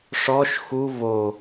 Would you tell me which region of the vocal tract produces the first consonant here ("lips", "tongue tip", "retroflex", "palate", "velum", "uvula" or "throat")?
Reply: retroflex